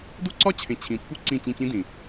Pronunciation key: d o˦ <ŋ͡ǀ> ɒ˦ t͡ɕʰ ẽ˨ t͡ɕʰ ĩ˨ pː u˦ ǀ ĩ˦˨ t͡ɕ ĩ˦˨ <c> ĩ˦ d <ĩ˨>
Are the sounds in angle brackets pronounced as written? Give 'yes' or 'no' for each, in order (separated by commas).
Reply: no, yes, yes